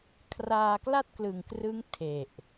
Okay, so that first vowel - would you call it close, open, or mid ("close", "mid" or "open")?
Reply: open